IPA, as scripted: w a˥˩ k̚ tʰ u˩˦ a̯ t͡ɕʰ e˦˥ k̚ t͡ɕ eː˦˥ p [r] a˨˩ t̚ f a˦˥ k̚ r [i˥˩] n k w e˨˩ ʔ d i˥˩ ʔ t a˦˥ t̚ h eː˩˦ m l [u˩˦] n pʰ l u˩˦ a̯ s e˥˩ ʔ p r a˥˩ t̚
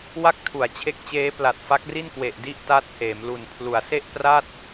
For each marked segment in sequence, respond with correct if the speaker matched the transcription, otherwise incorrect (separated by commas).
incorrect, correct, incorrect